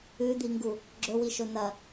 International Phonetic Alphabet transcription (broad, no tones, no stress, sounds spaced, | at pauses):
ʉ d̪ i ŋ ɡ u | ɡ͡ǁ ɵ w i ʃ ɵ n̪ ɐ